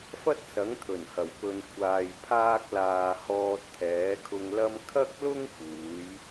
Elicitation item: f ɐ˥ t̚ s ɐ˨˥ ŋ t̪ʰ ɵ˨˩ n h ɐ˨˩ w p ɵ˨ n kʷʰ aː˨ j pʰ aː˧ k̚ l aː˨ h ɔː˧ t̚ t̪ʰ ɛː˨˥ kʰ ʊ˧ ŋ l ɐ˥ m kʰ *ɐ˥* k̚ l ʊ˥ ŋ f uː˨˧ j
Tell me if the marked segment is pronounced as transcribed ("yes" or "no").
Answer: yes